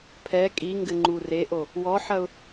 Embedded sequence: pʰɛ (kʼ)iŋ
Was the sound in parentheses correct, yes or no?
yes